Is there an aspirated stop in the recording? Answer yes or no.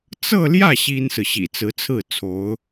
yes